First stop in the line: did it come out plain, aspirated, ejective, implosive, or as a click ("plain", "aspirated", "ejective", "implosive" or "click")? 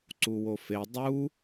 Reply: click